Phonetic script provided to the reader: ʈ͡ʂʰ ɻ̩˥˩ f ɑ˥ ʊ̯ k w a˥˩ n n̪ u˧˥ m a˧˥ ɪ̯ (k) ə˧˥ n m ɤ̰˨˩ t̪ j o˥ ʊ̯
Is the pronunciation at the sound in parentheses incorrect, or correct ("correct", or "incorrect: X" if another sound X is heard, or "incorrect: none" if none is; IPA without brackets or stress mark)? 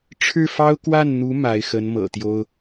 incorrect: x